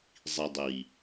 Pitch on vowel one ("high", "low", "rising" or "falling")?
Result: low